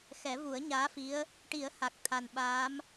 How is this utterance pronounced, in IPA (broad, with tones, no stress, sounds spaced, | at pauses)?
x ɛ˨˩˦ v u˨˩˦ ə̯ ɲ aː˧˥ f i˧˥ ə̯ | ʈ i˨˩˦ ə̯ h a˨˩ k̚ t̪ʰ a˨˩ n ɓ aː˧˥ m